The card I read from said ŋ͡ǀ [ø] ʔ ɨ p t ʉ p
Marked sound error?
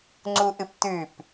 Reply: yes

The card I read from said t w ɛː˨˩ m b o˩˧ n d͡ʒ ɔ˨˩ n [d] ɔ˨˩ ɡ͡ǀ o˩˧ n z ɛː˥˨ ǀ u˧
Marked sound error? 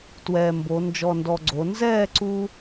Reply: no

